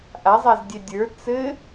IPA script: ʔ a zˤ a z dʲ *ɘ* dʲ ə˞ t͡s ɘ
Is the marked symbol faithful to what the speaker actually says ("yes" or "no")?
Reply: no